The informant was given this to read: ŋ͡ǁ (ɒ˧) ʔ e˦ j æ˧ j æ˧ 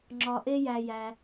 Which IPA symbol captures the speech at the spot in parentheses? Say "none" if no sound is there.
ɒ˧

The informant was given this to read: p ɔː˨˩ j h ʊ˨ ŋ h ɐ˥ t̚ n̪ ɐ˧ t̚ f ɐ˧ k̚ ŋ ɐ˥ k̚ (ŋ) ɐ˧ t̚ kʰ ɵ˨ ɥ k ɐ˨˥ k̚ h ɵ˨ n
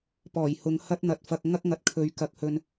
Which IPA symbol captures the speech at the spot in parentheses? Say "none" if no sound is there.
ŋ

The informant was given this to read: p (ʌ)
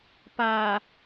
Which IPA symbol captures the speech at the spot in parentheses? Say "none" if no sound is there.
a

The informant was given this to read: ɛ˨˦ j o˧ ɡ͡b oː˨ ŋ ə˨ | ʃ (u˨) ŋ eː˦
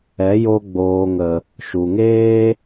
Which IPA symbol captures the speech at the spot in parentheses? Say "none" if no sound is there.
u˨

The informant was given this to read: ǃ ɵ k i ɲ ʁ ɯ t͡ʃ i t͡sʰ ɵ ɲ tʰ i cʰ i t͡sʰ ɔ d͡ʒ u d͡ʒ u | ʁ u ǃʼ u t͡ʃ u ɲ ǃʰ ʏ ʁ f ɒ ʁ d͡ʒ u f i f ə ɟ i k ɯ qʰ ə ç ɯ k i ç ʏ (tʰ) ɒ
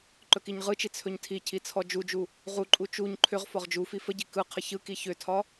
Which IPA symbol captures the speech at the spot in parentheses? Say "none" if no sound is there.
tʰ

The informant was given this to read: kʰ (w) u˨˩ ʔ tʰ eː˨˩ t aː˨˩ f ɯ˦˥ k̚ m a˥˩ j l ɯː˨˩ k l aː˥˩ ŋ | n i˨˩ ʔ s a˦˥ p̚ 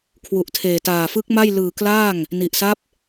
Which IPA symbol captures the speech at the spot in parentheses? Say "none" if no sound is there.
w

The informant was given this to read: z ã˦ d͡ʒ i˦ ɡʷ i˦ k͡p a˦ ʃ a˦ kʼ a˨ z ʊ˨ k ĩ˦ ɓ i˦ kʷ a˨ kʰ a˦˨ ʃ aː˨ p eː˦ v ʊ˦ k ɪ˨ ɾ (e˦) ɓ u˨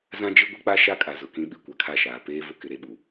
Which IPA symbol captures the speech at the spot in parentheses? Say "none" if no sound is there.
e˦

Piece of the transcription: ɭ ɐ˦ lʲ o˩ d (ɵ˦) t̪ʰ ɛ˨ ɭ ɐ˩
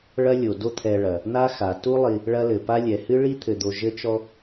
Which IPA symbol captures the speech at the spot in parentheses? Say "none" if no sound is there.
o˦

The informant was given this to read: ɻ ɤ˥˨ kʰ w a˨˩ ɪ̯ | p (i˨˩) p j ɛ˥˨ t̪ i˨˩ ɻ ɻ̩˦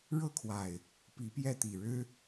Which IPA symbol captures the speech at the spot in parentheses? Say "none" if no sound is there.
i˨˦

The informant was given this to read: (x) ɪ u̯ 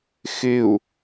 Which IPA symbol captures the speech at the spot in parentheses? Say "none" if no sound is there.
x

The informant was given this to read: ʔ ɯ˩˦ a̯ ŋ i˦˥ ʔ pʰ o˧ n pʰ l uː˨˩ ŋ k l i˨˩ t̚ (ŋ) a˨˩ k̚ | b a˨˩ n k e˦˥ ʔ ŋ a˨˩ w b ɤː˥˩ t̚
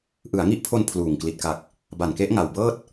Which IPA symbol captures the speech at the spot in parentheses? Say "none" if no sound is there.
k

